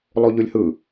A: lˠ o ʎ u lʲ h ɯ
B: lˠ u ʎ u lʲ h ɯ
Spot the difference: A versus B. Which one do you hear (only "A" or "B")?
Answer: B